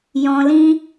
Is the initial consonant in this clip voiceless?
no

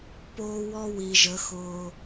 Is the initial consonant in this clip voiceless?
yes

